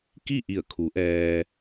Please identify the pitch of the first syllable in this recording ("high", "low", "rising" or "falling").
falling